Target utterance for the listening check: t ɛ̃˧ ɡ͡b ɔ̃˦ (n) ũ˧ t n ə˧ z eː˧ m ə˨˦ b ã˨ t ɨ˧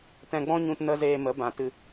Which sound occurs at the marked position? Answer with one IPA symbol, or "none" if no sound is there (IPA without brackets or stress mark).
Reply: ɲ